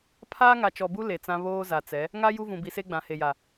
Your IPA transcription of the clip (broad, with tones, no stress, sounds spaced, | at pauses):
pʰ aː˦ ŋ a˨ t͡ʃ ɔ˨ b u˦ l e˨ t͡s ã˦ β oː˦ z a˨ t͡s ɛ˨˦ | ŋ a˦ j u˦ v ũ˨ b i˨ s e˦ ɡ͡b ã˨ h e˨ j a˨